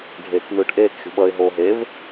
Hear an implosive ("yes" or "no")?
yes